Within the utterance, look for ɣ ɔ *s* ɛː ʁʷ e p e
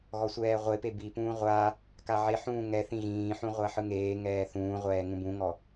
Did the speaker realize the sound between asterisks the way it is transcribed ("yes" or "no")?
no